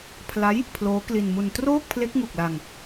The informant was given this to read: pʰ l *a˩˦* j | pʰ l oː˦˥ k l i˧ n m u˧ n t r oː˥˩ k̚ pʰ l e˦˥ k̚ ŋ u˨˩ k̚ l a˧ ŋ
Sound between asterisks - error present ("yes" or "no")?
yes